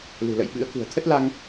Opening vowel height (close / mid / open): close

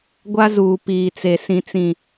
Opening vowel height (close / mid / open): open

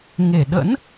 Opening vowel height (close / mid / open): mid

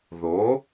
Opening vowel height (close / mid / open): mid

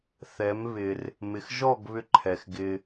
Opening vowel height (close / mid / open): mid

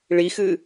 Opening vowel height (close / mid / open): close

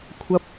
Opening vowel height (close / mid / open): open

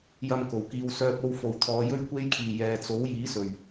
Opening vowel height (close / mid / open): open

